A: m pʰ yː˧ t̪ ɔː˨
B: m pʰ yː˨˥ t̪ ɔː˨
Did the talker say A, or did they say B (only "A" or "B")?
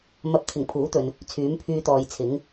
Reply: A